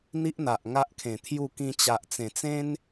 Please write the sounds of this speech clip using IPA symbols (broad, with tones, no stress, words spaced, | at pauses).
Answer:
n̪i˦ʔ n̪a˨ʔŋa˦ʔkʰẽ˨˩t̪ʰju˥˧ kĩ˧t͡ɕa˨ʔ t͡sẽ˨˩t͡sẽ˦n